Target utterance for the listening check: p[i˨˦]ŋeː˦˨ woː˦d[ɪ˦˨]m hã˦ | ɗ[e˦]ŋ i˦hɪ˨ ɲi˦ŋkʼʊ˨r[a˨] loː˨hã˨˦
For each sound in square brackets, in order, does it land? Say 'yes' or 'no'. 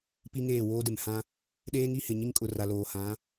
no, no, no, yes

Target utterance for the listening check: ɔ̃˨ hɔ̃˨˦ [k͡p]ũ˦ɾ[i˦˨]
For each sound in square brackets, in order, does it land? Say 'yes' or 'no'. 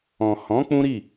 yes, yes

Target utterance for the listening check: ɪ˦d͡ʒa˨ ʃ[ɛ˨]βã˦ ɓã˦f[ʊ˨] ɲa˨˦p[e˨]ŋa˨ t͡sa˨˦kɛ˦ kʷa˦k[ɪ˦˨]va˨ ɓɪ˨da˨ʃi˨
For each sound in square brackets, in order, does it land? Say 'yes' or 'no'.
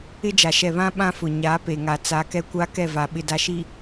yes, yes, yes, no

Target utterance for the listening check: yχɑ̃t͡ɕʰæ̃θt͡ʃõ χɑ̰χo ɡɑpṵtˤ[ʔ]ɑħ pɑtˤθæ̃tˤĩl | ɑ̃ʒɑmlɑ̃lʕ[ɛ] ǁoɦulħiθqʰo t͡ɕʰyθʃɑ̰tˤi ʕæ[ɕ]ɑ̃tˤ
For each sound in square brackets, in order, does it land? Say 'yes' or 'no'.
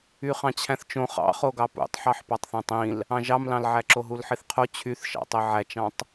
no, no, no

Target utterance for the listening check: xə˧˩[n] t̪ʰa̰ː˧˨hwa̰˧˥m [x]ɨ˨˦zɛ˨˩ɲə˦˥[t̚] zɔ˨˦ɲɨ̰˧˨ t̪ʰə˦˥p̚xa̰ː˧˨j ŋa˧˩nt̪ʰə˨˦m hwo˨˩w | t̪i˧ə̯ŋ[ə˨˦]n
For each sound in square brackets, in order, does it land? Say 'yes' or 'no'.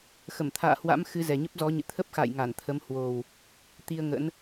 no, yes, no, no

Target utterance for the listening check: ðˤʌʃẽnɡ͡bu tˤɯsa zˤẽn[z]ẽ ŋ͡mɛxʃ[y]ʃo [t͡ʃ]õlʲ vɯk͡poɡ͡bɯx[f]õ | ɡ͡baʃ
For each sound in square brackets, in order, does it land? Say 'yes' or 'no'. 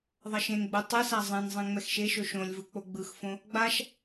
no, no, no, yes

